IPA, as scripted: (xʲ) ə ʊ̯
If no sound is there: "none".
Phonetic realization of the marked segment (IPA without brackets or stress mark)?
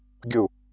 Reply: ɡʲ